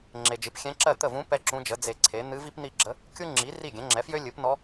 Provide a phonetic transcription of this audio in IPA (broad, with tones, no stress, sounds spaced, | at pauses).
ŋ͡ǁ e˨ d͡ʒ ɨ˩˥ p xʲ ɛ̃˧˥ ǁ ɜ˥˩ t̪ ə˥˩ v ũ˧˥ p ɛ˥ ǁ ũ˧˥ d͡ʒ ə˩˥ d͡z e˨ ǀʰ e˩˥ n̪ ɨ˧˥ v i˥ p n̪ i˥˩ ɡ͡ǁ ə˧˥ | kʲ u˥ ŋ͡ǁ i˩˥ r i˥˩ ɡʲ ɛ̃˩˥ ŋ͡ǁ ɛ˩˥ f j ø˥ lʲ ɨ˩˥ p n ɔ˧˥